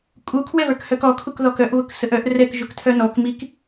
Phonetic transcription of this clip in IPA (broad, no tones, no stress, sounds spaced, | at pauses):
kʼ u kʰ w ɛ v ə˞ k h œ k ɔ kʰ u k ð ɔ k œ ʔ β ʊ k s ə ʔ œ ʔ r ɛ k ʒ ʊ k tʰ œ n ɔ k m i k